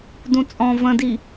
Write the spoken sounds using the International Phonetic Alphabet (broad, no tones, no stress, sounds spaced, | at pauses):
d ũ t͡sʼ ɔ̃ v ə̃ d i